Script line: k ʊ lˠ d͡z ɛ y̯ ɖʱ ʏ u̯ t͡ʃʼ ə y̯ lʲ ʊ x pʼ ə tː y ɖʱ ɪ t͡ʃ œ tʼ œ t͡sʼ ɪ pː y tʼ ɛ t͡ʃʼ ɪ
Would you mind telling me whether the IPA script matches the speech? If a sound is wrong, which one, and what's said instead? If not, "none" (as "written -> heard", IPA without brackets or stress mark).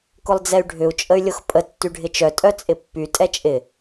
none